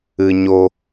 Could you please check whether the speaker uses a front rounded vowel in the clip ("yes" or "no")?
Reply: no